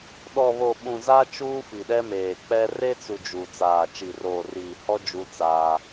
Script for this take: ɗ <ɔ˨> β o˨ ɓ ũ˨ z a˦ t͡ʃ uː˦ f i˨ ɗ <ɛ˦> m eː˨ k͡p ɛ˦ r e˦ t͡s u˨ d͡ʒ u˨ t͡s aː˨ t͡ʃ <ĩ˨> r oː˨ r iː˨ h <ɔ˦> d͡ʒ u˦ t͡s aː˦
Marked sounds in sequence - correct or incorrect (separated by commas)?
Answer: correct, correct, incorrect, correct